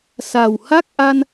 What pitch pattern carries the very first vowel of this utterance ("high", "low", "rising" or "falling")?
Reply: low